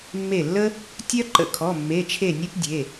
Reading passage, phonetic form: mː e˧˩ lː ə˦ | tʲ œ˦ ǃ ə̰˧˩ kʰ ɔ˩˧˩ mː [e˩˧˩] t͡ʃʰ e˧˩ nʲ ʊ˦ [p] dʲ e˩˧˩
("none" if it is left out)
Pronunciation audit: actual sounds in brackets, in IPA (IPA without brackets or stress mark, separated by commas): e˩˧˩, p